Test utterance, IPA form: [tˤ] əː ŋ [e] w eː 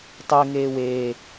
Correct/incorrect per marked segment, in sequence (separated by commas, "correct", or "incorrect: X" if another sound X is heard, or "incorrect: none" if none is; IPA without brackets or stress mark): correct, incorrect: eː